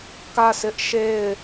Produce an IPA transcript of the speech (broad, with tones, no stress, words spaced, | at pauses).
kä˦˨sʰɪ˦ʔ ʃe˦˨ɪ̯